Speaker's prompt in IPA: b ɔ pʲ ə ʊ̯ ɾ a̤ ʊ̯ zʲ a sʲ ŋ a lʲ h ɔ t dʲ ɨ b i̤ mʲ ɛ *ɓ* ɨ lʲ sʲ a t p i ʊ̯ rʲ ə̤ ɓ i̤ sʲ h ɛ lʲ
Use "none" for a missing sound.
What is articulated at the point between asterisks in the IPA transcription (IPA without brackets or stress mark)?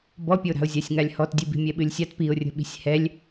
ɓ